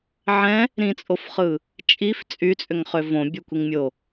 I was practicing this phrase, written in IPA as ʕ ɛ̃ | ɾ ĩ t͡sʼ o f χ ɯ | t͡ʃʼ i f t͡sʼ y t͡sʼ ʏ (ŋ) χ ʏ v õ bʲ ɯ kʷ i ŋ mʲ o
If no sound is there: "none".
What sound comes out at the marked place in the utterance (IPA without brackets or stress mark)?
ŋ